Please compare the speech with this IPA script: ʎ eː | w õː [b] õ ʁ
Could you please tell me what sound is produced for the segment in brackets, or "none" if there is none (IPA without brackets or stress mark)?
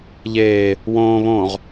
β